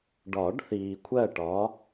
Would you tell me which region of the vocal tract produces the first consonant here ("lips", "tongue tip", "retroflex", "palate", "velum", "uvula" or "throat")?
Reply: retroflex